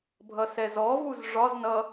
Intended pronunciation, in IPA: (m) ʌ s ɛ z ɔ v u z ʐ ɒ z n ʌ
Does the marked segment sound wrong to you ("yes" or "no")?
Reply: yes